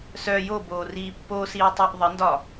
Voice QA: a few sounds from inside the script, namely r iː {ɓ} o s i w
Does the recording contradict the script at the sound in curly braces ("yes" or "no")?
yes